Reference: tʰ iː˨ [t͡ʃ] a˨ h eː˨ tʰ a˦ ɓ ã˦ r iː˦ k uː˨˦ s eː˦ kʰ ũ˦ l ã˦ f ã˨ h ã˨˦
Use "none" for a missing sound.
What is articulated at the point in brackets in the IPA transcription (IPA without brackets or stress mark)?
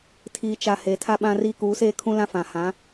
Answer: t͡ʃ